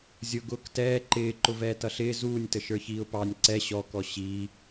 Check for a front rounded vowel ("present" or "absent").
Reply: absent